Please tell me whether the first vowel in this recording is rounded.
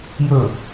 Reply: yes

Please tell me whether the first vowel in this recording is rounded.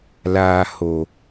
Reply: no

